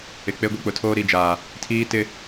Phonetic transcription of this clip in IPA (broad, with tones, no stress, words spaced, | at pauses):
ɪ˨ k͡pe˦ɡʷi˦˨ k͡pʊ˨tʰoː˦ ɾi˦˨d͡ʒaː˨ | tʰiː˦tɪ˦